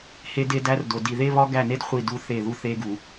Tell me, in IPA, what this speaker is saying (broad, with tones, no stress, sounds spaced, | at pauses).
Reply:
h e˦ d e˦ d æ˦ r d o˨ d i˨ ð e˦ β ɒ˦ ɡ æ˦˨ n e˦ d χʷ i˦˨ d u˦ θ e˦˨ ð u˦ θ e˦ ɡ u˨